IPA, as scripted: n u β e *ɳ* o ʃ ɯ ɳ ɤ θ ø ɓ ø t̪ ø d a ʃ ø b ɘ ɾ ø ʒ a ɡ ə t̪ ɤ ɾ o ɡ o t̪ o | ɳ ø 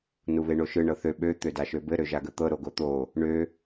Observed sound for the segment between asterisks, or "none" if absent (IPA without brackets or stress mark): ɳ